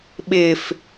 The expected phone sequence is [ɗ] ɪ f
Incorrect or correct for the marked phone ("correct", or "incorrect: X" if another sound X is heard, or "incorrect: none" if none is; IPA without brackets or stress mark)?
incorrect: ɓ